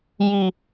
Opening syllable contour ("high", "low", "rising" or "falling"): low